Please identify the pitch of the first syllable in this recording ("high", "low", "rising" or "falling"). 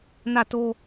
falling